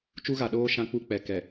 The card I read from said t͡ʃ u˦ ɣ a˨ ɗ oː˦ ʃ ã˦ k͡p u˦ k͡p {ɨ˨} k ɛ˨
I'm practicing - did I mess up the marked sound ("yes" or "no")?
yes